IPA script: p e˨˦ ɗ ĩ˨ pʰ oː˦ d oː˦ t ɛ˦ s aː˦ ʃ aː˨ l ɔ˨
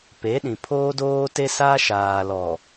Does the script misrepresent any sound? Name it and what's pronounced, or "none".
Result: ɛ˦ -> e˦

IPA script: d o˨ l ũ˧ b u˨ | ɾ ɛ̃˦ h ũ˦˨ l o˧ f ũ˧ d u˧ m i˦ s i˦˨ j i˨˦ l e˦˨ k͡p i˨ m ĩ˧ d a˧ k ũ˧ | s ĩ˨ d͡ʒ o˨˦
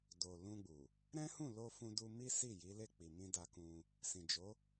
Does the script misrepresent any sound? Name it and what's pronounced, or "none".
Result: b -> ɡ͡b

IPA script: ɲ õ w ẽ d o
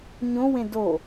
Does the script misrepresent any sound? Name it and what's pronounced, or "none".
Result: none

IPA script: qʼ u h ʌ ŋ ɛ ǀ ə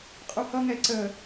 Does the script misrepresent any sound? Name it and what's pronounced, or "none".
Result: none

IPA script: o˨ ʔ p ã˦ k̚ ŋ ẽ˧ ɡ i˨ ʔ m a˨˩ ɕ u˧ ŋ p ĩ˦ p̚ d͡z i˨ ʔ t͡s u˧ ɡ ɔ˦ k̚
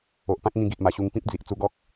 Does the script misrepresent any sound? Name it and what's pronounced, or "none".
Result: ẽ˧ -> ĩ˧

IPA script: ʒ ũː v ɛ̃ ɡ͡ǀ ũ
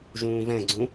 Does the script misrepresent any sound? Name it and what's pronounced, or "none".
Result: none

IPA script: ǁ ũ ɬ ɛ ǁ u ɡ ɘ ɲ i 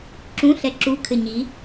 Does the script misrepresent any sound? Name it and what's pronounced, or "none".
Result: ɡ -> kʰ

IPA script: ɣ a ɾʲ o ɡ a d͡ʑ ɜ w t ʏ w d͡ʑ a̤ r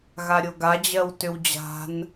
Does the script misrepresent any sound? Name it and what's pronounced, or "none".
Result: r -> n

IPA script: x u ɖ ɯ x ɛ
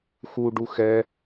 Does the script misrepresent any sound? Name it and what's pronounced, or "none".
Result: ɯ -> u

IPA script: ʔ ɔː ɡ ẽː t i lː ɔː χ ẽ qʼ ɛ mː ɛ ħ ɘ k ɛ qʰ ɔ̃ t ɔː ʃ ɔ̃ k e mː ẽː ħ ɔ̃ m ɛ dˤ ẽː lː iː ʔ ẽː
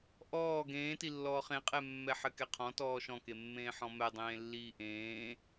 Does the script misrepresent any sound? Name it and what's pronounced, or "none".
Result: none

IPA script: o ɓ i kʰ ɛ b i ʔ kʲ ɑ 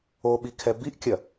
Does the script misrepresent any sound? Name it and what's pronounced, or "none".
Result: ɑ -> ɐ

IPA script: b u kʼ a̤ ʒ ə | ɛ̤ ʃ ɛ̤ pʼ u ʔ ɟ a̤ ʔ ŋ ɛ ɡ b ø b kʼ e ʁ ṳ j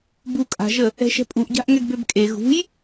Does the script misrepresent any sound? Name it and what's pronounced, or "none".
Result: ʁ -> ɣ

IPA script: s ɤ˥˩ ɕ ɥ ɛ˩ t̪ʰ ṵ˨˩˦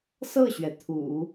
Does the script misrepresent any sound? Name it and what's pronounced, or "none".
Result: none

